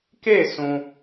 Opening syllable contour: falling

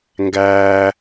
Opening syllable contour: high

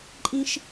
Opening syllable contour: high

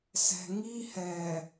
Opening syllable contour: low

